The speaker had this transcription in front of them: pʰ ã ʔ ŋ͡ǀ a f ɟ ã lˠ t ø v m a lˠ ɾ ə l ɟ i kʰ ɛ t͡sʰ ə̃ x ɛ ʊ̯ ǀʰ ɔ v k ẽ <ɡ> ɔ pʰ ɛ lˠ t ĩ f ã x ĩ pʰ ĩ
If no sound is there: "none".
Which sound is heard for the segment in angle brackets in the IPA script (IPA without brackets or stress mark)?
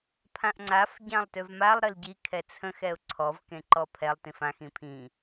ǃ